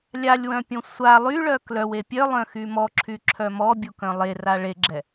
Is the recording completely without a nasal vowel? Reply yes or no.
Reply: no